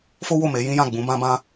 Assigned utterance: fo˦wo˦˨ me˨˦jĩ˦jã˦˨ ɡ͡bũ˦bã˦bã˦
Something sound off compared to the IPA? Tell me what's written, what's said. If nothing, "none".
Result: ũ˦ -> ũ˨˦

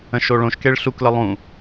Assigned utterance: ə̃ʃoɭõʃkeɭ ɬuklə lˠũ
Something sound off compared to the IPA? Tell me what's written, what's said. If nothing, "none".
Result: none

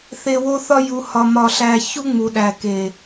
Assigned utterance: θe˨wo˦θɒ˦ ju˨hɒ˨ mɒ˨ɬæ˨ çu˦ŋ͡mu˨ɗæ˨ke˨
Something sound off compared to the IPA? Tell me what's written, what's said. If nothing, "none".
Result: none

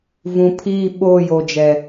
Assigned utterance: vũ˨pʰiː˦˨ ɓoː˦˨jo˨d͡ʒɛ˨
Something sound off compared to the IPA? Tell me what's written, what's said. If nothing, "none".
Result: none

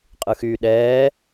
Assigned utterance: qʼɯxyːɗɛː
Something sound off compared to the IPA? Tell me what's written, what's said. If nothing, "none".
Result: none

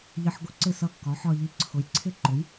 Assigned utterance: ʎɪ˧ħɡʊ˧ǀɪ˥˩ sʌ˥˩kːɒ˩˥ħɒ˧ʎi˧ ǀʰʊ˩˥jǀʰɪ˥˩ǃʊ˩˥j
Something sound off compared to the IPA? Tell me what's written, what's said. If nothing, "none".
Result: none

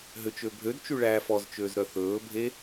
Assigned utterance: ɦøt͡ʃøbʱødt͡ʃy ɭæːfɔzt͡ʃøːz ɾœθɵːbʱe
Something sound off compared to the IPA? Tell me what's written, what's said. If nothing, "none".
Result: none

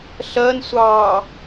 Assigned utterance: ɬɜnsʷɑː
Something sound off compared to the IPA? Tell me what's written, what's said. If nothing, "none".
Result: none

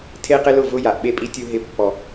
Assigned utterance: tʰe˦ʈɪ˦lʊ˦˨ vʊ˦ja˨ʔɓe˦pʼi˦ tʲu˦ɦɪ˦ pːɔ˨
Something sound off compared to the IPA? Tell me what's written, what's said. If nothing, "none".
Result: ʈ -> q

